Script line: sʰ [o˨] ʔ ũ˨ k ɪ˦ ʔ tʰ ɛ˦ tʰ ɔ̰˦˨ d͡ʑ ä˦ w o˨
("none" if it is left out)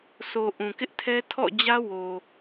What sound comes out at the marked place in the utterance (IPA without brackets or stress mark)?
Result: o˨